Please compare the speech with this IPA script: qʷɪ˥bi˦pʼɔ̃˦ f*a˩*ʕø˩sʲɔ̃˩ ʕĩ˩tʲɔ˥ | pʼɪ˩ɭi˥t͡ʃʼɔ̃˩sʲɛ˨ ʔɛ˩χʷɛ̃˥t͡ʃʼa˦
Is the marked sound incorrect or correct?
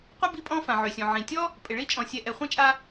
incorrect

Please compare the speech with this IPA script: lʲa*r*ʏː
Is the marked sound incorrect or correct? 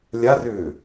correct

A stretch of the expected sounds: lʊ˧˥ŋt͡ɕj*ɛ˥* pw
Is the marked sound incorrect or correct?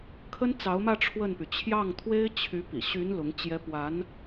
correct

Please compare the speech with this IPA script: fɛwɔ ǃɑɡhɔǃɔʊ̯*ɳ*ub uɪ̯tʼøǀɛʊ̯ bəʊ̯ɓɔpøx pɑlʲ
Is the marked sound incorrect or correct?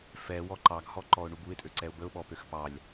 correct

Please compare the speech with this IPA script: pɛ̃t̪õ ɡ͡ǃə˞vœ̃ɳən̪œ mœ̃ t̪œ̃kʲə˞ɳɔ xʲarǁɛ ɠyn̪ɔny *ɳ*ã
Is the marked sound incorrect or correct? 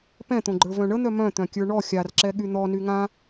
incorrect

